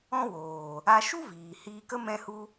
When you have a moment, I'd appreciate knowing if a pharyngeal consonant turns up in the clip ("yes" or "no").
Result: no